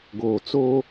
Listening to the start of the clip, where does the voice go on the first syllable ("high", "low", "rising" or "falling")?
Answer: low